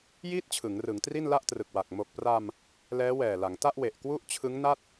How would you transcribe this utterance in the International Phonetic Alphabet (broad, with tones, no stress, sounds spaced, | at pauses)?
j iː˥˩ t̚ t͡ɕʰ ɯ˩˦ ŋ r ɯ˩˦ ŋ t r i˥˩ n l a˥˩ ʔ t r ɯ˨˩ k̚ w a˨˩ k̚ m o˨˩ k̚ p r a˧ m | l ɛː˦˥ w ɛː˨˩ l a˩˦ ŋ t a˥˩ ʔ w e˨˩ ʔ k w u˥˩ ʔ t͡ɕʰ ɯ˦˥ ŋ n a˥˩ t̚